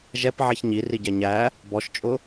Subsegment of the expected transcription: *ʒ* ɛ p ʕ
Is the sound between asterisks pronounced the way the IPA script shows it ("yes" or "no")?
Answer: yes